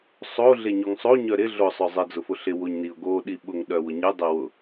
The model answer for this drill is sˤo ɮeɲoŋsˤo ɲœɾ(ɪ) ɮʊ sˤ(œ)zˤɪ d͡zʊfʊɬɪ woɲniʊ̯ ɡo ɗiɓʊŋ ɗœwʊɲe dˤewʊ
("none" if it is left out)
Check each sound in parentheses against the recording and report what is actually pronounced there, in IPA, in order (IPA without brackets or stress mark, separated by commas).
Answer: ɪ, œ